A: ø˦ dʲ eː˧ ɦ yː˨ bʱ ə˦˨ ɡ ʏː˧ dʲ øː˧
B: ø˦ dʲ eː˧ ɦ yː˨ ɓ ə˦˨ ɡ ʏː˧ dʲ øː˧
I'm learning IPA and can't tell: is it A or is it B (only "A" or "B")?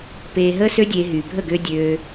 A